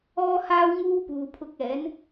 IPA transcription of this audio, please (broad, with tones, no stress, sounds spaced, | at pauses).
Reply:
ɔː˥ h aː˥ w ŋ uː˥ p uː˨ pʰ ʊ˧ k̚ ɛː˨˥ n